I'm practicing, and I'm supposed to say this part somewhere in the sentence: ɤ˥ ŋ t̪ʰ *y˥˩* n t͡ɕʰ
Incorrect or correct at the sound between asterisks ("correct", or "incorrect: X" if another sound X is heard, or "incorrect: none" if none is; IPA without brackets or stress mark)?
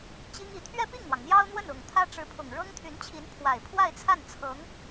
incorrect: y˧˥